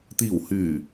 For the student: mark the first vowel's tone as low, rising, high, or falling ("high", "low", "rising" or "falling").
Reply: low